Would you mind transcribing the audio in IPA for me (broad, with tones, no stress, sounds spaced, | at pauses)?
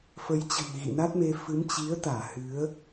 f ə˨˦ j t͡ɕ ə̤˨˩ n ɣ ḭ˧˨ n a˦˥ t̚ m e˧ f ɨ˨˦ m t͡ɕ i˨˦ ə̯ t̪ aː˧˩ h ɨ˨˦ ə̯